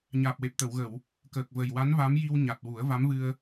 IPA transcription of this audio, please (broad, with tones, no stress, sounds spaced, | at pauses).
ɲ aː˨˩ p̚ w e˨˩ p̚ t̪ ə˨˩˨ w ɣ ə˨˩˨ w | k əː˨˩ k̚ v ə˨˩ j w a˧˥ n v a˧˥ m j i˧ w ɲ a˨˩ t̚ w u˨˩˦ ə̯ v a˧˥ m v ɨ˧ ə̯